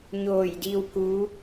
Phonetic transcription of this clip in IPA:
ɲ oː˧˩ j d i˧ w k u˧˥

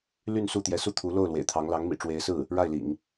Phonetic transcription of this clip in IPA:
l y˥˧ n s u˥˩ t̪ j ɛ˧˥ s u˥ t̪ʰ u˧˥ l o˥˩ ʊ̯ l w ḛ˨˩ ɪ̯ t̪ʰ ɑ˧˥ ŋ l ɑ˧˥ ŋ m ḭ˨˩ ʈ͡ʂ w e˧˥ ɪ̯ s ɹ̩˥˩ | ɻ a˥˩ ɪ̯ l ḭ˨˩˦ ŋ

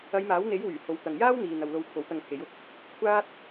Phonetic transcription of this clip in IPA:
ɐ˨˧ j m aː˨˥ w n̪ e˨˥ j w yː˨˩ h o˨˧ w t̪ ɐ˨ ŋ j aː˥ w n̪ iː˨ n̪ ɐ˨ w l o˧ w kʰ o˨˥ w t̪ ɐ˧ ŋ pʰ e˨˥ j ʊ˧ k̚ | kʷʰ aː˥ t̚

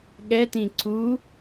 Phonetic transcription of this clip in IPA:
ɠ ɛ t ĩ ǀ u

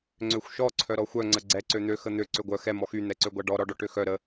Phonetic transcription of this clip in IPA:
ŋ͡ǀ ø xʷ ʃ ɔ ǀʰ œ ɾ ɔ xʷ œ ŋ͡ǀ ə ɡ͡ǀ ɛ ǀ ø n̪ ø x ə n̪ ø ǀ ø ɡʷ œ x ɛ m ɔ x y n̪ ɛ ǀ ø ɡʷ a ɖ ɔ ɾ ɔ ɖ ɔ ʈ ø x œ ɾ ə

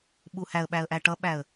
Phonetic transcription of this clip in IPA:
ɓ u h æ ə̯ ɓ æ ə̯ ʔ æ ʈ ʌ ɓ æ ə̯

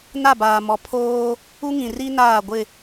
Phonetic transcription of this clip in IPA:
n a˦˨ b aː˨ m ɔ˨ pʰ oː˦ | u˦ ŋ ĩ˨ r i˦ n aː˦˨ ɡʷ ɪ˦˨

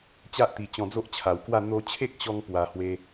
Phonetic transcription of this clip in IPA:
t͡ɕ a˦ ʔ t̪ i˨˩ t͡ɕ ɔ̃˧ d͡z o˦ ʔ t͡ɕʰ a˨˩ w k w a˥˧ n̪ o˧ t͡ɕʰ e˦ k̚ ɕ ɔ˧ ŋ p w a˧ h w e˦

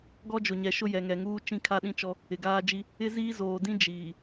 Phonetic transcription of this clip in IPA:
ɡ ɔ˦ d͡ʒ ʊ˨ ɲ ɛ˨ ʃ ʊ˦ j ɛ˨ ŋ ɛ˨ ŋ uː˦ t͡ʃ ĩ˦ kʰ a˦ ɗ ĩ˦ t͡ʃ ɔ˦ | ɪ˨ ɡ aː˦ d͡ʒ i˦ | ɪ˦ z iː˦ z oː˨ d ĩ˦ d͡ʒ iː˨

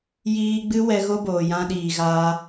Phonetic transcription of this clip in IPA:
j iː˧ ɡ͡b ɨ˦ w ɛ˦ ɣ o˦ b oː˨ j ã˧ ɗ iː˨ ɣ aː˧

